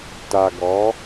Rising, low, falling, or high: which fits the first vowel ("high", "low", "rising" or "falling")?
low